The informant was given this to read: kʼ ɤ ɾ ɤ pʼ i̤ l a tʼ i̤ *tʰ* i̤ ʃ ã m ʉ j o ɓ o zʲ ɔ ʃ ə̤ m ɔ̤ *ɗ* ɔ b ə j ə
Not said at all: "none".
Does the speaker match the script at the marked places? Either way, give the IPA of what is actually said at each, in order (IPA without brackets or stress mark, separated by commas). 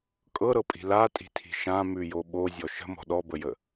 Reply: tʰ, ɗ